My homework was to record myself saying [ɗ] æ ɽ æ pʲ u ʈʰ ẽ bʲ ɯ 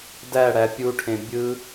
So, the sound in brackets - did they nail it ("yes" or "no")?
no